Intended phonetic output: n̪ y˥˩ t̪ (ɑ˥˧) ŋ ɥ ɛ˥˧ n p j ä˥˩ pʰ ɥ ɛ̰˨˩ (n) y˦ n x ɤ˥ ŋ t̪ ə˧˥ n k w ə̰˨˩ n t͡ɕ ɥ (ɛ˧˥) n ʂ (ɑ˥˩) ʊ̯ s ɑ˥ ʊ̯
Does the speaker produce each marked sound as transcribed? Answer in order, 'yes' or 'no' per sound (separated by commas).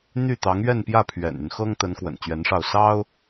no, yes, yes, yes